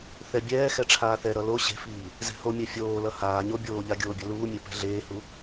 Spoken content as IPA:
θ ɛ bʲ ɛː x ɛ ʈ͡ʂʰ aː θ ɛ ɾ ʌ l o ɕ e̤ f iː | z ɛ̤ h o mʲ ɛ fʲ oː l ʌ h aː ɲ o bʲ oː ʎ a ɡʲ oː bʲ ʌ l uː mʲ ɛ p ɛ̤ ɮ eː h u

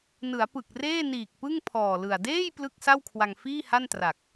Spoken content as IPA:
n ɯ˩˦ a̯ p ɯ˨˩ k̚ r eː˥˩ n iː˨˩ k̚ p ɯ˥˩ ŋ pʰ ɔː˨˩ l ɯ˨˩ a̯ d eː˥˩ j p l ɯ˥˩ k̚ s a˥˩ w kʰ w a˧ ŋ f iː˥˩ h a˥˩ n t r a˨˩ k̚

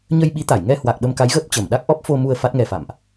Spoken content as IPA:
ɲ ə˧ j ɓ i˨˦ t̪ a˧˩ j ŋ ɛ˧ h w a˨˩ k̚ ɓ ə˧ m k a˨˦ j ɣ əː˦˥ p̚ t͡ɕ ə˧˩ m ɗ a˦˥ k̚ ʔ ɔ˦˥ p̚ f o˧ m u˧ ə̯ f a˦˥ t̚ ŋ ɛ˧ f a̰˧˨ m ʔ

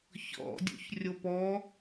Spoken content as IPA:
ç ɔ̰ dʲ o̰ ç rʲ o p ɔ

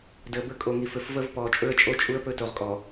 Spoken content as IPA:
d əː˨ b ə˦ kʼ o˨ ŋ i˨ f ɘ˨ f v əː˦ v p ɔː˨ t͡ʃʼ ɵ˦ ə̯ t͡ʃʼ o˦ t͡ʃʼ u˦ ə̯ p ɵ˦ t o˨ ʁ kʼ ɔ˨

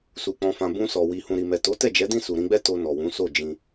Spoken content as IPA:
s u˨ k͡p ɔ̃˨ f ã˨ b ũ˧ s ɔ˨ w i˨ h ũ˨ ɾ i˨ m ɛ˨ t o˨˦ t ɛ˦˨ d͡ʒ ɛ˨˦ d ĩ˦˨ s u˨ ɾ ĩ˧ ɡ͡b ɛ˦ t o˧ n ɔ˨ w ũ˨˦ s o˦˨ d͡ʒ ĩ˧

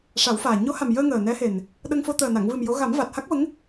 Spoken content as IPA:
ʂ a˨˩˦ w f aː˨˩ ɲ o˧˥ h a˨˩ m j əː˧ ŋ əː˨˩ n ɛ˧˥ h e˨˩ n | ɗ ə˧ ŋ f o˧ t̪ əː˨˩ n a˨˩˨ ŋ v ɨ˨˩ m j o˧˥ ɣ a˨˩˦ m v a˨˩ t̚ h a˦˥ k̚ v ə˧˥ ŋ

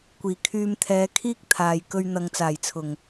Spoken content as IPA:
kʷ iː˨˩ kʰ yː˧ m t̪ʰ ɛː˨˧ kʰ iː˥ k̚ t̪ʰ aː˨ j k ɵ˧ ɥ n̪ ɐ˨˧ ŋ t͡s aː˨˩ j t͡sʰ ʊ˨˩ ŋ

